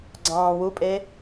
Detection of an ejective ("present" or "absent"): present